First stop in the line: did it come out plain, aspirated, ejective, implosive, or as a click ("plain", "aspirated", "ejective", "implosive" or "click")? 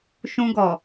plain